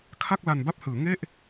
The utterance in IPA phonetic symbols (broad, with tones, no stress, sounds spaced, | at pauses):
kʰ a˥˩ k̚ l a˧ n b a˥˩ p̚ h ɯː˩˦ ŋ e˥˩ ʔ